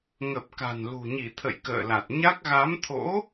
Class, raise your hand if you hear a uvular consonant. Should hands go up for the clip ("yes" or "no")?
no